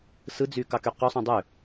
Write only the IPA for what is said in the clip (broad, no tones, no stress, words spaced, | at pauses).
sɯd͡zy kɑkyqosˤũ dˤø